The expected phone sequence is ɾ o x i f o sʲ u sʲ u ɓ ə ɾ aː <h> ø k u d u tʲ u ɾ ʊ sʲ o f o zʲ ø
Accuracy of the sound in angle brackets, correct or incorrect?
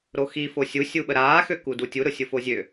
incorrect